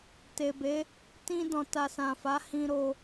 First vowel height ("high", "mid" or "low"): mid